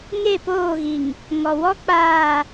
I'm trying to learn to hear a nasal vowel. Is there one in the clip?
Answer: no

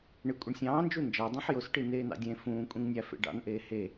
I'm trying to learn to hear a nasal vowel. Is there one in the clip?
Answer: yes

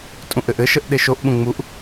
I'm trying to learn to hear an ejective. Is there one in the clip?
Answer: yes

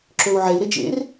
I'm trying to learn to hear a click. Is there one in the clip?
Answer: yes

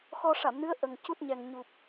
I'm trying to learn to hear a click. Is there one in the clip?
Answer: no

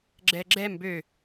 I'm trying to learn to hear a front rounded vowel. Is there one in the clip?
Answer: yes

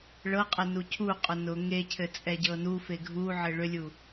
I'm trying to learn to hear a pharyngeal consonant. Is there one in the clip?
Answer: yes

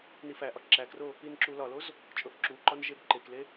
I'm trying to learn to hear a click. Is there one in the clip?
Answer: yes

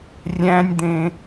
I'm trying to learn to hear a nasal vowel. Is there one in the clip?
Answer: yes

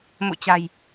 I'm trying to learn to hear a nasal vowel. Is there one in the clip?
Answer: no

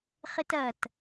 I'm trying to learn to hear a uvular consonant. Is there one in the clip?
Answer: yes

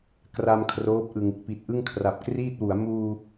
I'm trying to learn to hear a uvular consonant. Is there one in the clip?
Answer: no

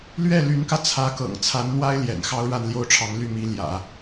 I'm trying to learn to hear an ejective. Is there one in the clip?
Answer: no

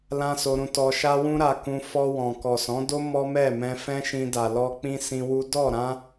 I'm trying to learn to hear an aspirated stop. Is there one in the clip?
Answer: no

